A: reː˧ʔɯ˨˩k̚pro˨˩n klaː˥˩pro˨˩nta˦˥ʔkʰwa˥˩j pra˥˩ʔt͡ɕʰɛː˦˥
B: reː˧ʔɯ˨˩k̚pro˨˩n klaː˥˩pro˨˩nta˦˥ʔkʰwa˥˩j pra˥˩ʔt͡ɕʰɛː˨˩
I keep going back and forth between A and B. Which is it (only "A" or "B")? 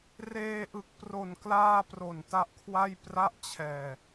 B